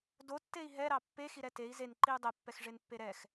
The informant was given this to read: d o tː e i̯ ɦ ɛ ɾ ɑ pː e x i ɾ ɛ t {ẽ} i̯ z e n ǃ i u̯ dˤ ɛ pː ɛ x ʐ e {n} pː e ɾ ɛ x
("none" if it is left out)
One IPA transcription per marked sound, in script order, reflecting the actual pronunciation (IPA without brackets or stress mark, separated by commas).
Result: e, n